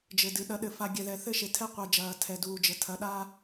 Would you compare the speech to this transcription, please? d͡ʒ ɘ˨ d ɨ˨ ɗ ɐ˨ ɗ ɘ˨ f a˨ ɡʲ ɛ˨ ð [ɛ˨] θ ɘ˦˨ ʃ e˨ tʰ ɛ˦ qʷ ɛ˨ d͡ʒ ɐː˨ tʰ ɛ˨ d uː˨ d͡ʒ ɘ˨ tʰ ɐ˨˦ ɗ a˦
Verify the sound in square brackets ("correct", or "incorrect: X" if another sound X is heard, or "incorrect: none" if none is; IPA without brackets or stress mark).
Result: correct